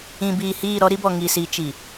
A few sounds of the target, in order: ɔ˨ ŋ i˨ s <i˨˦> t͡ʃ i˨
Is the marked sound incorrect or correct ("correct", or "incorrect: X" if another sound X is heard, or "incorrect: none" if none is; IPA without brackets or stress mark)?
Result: correct